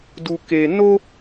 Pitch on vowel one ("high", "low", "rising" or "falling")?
high